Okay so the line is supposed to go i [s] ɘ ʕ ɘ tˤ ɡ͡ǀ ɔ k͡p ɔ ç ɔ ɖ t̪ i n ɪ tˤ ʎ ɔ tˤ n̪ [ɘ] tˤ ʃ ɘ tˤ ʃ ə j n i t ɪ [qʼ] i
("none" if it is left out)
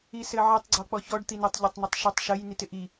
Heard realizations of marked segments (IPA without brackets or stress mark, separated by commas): s, ɘ, ʔ